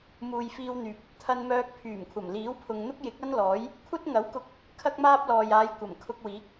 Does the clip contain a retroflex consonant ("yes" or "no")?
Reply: no